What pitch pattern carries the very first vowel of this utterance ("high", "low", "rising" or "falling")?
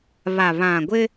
low